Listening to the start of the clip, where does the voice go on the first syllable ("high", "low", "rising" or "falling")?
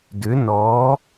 rising